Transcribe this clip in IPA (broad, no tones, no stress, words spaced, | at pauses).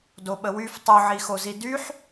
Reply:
doɓəwyf tˤuʕixozi dyħ